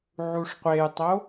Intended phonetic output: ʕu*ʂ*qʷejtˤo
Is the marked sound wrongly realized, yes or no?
no